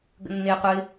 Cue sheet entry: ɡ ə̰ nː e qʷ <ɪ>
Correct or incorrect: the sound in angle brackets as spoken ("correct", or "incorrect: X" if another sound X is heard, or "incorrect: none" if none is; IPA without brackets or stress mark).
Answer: correct